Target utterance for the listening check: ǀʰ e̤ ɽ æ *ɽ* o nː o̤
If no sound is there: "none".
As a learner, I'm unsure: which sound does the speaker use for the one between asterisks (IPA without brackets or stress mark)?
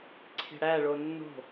ɭ